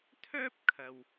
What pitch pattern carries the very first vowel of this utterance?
high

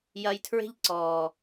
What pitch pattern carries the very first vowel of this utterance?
high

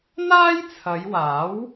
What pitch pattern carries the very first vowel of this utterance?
high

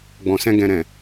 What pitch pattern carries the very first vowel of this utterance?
low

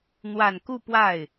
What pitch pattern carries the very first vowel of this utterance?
low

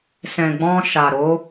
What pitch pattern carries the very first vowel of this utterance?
low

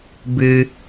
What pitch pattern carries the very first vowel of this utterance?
high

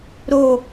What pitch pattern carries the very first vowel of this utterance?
falling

